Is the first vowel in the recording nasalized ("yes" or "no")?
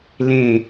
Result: yes